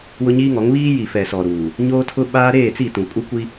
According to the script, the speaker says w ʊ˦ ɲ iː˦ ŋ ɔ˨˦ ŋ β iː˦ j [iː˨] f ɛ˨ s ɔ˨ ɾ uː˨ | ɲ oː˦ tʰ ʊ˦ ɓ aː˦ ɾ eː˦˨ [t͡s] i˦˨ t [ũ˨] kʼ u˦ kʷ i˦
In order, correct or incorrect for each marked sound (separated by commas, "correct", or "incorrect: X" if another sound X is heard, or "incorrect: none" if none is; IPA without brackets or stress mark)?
incorrect: i˨, correct, correct